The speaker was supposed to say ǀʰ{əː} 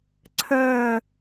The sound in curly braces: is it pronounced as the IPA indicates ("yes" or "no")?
yes